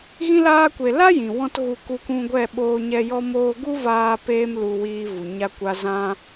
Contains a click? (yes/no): no